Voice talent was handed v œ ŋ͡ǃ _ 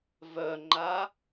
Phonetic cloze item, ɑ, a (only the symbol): a